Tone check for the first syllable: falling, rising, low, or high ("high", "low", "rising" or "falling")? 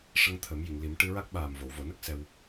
rising